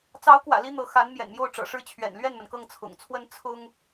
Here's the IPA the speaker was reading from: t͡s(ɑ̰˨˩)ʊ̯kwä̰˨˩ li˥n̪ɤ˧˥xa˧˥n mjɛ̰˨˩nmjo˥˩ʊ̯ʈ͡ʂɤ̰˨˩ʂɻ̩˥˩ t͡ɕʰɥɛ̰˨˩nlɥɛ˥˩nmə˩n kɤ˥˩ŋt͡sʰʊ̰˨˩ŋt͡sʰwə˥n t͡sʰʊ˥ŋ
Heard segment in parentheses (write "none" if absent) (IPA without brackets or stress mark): ɑ˧˥